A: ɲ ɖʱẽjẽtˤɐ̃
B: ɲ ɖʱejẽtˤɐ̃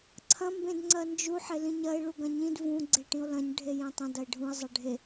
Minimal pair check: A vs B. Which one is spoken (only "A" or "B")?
B